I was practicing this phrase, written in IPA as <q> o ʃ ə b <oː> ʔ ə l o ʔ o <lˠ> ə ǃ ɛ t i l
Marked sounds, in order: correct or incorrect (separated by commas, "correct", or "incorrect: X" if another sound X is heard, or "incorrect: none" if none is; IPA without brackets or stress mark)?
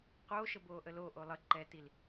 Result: correct, correct, correct